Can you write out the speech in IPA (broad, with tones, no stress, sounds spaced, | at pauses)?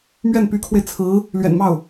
m ɥ ɛ˥˩ n p y˧˥ kʰ w e˧ ɪ̯ t͡sʰ ɹ̩˧˥ | l ɥ ɛ̰˨˩ n m ɑ˥˩ ʊ̯